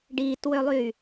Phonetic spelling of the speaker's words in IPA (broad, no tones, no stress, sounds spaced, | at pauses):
ɖ iː t w ø lˠ yː